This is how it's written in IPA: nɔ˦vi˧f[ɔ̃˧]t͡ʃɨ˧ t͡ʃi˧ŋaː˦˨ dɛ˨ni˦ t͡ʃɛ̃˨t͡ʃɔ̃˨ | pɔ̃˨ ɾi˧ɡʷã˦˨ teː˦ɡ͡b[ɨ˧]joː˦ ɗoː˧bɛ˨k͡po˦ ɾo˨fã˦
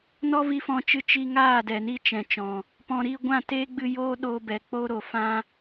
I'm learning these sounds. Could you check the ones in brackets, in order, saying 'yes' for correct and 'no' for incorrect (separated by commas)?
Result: yes, yes